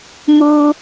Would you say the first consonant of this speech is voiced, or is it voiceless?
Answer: voiced